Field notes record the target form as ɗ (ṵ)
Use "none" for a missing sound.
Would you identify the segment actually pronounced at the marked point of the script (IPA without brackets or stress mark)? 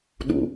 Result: ṵ